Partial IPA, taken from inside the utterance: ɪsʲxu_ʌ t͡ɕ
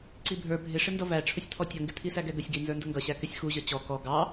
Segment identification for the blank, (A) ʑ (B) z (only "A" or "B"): A